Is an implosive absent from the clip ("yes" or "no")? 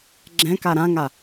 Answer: yes